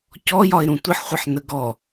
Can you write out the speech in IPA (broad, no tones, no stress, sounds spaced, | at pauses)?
c ɔ j ɒ ɪ̯ ɾ ũ tʷ ɪ ħ χʷ ʌ ħ n ə ɡ ɔ